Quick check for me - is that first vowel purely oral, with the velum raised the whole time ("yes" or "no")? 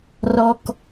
yes